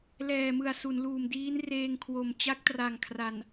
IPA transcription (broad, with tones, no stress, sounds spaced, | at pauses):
l ɛː˨˩ m ɯ˨˩ a̯ s u˩˦ n l uː˨˩ m d iː˦˥ n r eː˧ ŋ kʰ w o˨˩ m t͡ɕ a˦˥ k̚ t r a˨˩ ŋ kʰ r a˨˩ n